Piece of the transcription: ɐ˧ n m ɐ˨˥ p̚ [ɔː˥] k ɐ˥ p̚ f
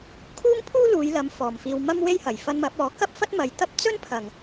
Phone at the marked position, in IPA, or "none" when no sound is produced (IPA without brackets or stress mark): ɔː˨˥